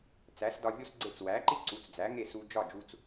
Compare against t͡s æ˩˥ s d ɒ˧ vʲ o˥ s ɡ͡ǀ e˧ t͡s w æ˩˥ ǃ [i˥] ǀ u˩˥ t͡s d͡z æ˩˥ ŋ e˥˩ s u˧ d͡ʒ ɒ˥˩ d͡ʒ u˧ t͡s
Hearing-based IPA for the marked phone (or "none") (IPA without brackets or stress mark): i˥